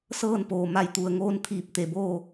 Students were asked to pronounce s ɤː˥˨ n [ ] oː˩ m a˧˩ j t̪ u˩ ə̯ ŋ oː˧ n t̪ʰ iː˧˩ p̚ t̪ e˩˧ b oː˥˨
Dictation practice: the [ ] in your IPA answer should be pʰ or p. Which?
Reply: p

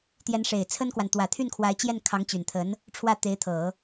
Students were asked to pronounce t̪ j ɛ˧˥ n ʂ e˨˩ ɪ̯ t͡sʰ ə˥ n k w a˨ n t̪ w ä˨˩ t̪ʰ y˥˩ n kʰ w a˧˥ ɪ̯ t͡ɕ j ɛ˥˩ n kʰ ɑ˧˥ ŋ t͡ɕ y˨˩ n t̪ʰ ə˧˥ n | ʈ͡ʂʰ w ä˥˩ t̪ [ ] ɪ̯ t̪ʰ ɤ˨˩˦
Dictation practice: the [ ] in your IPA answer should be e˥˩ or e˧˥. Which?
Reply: e˧˥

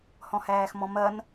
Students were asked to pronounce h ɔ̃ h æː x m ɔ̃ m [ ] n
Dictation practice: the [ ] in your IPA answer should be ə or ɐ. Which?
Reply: ɐ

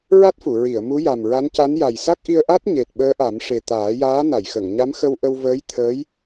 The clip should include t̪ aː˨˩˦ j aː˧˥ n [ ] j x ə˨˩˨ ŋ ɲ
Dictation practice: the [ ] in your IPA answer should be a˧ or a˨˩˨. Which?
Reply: a˨˩˨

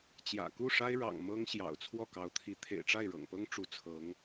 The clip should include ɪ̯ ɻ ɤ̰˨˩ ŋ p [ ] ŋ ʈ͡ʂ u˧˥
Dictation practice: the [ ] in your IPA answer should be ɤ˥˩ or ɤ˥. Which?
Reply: ɤ˥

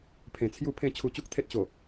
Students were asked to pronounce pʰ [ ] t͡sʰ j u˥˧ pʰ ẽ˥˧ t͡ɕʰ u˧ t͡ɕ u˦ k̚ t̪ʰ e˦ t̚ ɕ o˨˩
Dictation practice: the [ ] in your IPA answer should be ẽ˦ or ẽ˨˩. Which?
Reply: ẽ˨˩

